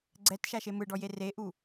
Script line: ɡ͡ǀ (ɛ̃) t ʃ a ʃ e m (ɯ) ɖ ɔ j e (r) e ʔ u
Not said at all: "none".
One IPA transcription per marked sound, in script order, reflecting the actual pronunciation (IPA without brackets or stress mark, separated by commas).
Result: ɛ, ɯ, r